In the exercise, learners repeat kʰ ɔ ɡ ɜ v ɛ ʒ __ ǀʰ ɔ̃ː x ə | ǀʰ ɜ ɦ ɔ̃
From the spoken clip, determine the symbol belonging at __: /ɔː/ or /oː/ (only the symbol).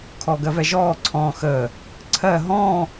ɔː